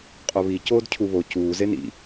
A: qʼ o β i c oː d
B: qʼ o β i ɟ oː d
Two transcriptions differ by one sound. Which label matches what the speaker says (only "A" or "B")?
A